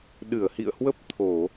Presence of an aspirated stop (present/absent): present